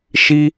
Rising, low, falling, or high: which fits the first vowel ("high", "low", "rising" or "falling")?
high